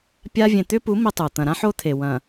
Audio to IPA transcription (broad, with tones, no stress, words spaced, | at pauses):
pʲa˦ vʲẽ˨t̪ʏ˦pu˨˦ mi˦tˤu˨ t̪ɐ̃˨ɾã˦ħo˦t̪ʰe˨ wɐ̃˨